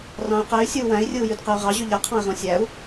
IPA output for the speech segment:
r ɑ̃ y̯ q e y̯ sʲ ɯ u̯ w æ̃ i̯ rʲ ɯ u̯ j y d q ɯ y̯ ʁ ɑ ʑ y ʎ æ qʰ ɑ̃ i̯ ʁ õ sʲ æ u̯

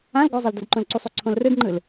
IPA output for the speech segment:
ã l ɡʷ ɤ zˤ ɤ l d ɤ d ǃ õ l ǀ u sˤ o ǀʰ õ l r ɯ d ŋ͡ǃ ɯ l

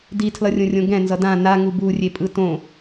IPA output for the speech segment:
d i tʰ l ʌ rʲ õ rʲ õ ɡ ɛ̃ n z ʌ d ã n a ŋ u b u rʲ e pʼ ɯ t õ

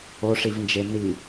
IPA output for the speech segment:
o ʂ i v n d͡ʒ e n i

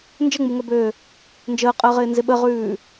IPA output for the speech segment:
n d͡ʒ ə ŋ͡m u ŋ œ b øː | n d͡ʒ əː qʼ əː ʁ ɪː n z ɪ ɓ ə ʁ ʉː

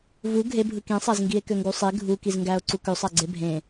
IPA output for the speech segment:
v u ɡʱ e bʱ ɯ k ĩ sˤ æ z ŋ ɡ i e̯ k ø ŋ ɡ u sˤ e ɡʱ u k i z ŋ ɡ æ o̯ ǀ u k ø sˤ æ ɡ͡ǀ e bʱ ẽ

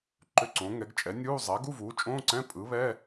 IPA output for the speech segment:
ǃ ʏ˧˥˧ ǀ õ˩˥ ŋ ɛ˩˥ ɡ t͡ʃʼ ɛ˩˥ nʲ uː˧˥˧ zˤ æ˩˥ ɡ u˧˥˧ v uː˩˥ t͡ʃʼ õː˧˥˧ ǀ ɛ̃˧˥˧ pʼ ɯ˩˥ β ɛ˧˥˧

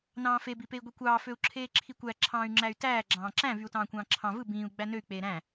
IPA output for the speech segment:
n ɑ̃ː f e b i p e i̯ ɡʷ i kʷ ɑː f ø u̯ ǁʰ eː ǁʰ i kʷ æ ǁʰ ɑ̃ː y̯ ŋ͡ǁ æ y̯ t æː ɡ͡ǁ ɑ̃ː ǁ æ̃ v y u̯ t ɑ̃ː kʷ ɑ̃ː ǁʰ ɑ̃ v ɯ b ĩː u̯ ɡ͡b æ n ø y̯ k͡p eː ɾ æ̃

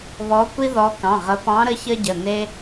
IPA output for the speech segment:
β ɔ˨˦ kʷ i˦ ð ɔ˨˦ k ɑ̃˩˧˩ ʁ ə˨˦ p ɑ̃˨˦ ɾ ə˨˦ ç ə˦ ɟ ə˩˧˩ n e˦

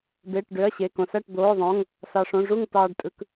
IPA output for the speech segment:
b e˩˧˩ ʈ ɖ ø˩˧˩ ɐ̯ ɕ e˩˧˩ k õ˩ s æ˥˨ ʈ d̪ oː˩˧˩ ðˤ õ˩˧˩ ŋ | s ɑ˩ ʂ õ˩˧˩ ʐ u˥˨ ŋ t ɑː˩ ɖ tʼ ɯ˩ k

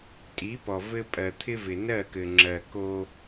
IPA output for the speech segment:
tʼ i˨˦ p ɔ˨ v ɘ˦ pʼ ɜ˨ t̪ʰ ɪ˦ v ɪ˨ n ɜ˦˨ k ɘ˨ ŋ͡ǁ ɜ˨ k o˦

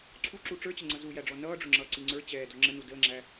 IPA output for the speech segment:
ǀʰ u ǁ u ʈ͡ʂ ə˞ t͡ɕ ə ŋ͡ǀ ʌ z u j æ ɖ͡ʐ ɔ n ʌː ɖ͡ʐ ʊ ŋ͡ǁ ʌː ǀ i ŋ͡ǀ ə˞ t͡ɕ ɛː d ɔ ŋ͡ǁ ə n u d əː ŋ͡ǁ æ

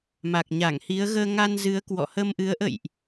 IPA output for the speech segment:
m a˨˩ k̚ ɲ a˧˩ ŋ h i˨˦ ə̯ ɣ əː˧ ŋ a˧ n z ɨ˨˦ ə̯ k w ɔ̰˧˨ h ə˧ m ʔ ɨ˨˦ ə̯ ʔ ə̰˧˨ j ʔ

